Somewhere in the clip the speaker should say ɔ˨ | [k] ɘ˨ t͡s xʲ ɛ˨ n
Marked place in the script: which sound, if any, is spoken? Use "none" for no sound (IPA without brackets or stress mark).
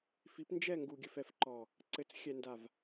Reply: ǀ